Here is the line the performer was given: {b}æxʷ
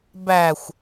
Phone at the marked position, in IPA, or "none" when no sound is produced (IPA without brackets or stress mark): b